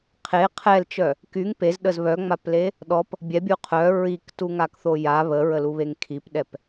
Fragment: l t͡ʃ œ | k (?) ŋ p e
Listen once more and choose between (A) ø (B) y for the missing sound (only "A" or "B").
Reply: B